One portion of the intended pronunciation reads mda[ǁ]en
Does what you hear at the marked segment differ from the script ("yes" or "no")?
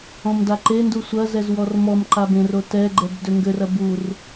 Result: yes